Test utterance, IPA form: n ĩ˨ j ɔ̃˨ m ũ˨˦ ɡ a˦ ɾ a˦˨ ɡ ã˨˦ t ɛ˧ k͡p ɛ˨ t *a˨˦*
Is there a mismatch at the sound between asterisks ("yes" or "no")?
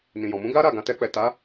no